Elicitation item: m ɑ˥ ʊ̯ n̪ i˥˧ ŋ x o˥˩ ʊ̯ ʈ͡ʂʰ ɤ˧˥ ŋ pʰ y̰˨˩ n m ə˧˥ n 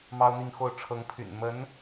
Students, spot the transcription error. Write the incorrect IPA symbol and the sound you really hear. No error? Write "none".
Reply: none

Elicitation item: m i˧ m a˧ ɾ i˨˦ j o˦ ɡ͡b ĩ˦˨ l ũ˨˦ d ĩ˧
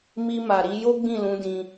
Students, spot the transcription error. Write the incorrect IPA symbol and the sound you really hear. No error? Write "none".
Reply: a˧ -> a˨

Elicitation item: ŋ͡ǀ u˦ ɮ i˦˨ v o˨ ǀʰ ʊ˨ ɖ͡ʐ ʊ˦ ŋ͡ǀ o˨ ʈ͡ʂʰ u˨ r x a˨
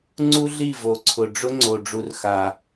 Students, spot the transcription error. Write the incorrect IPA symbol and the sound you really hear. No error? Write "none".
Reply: ʈ͡ʂʰ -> ɖ͡ʐ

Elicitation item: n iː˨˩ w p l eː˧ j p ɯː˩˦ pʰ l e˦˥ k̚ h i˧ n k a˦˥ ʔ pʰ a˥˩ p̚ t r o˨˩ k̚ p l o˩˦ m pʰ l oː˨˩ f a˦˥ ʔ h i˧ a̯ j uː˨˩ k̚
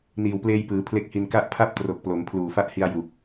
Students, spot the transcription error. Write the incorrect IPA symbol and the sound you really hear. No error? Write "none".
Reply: oː˨˩ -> uː˨˩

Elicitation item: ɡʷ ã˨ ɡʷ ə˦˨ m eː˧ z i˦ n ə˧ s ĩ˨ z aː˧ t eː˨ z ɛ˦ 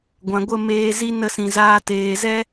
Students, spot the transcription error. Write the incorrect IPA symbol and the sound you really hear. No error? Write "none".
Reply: none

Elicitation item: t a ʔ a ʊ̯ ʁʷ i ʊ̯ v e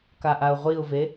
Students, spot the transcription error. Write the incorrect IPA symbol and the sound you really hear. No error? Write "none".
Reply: t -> k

